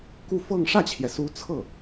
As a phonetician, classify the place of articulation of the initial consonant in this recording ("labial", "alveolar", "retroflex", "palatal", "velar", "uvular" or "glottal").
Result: velar